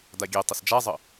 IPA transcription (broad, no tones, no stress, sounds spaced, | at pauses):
d a ɡʲ e tˤ ɪ s d͡ʒ a zˤ ə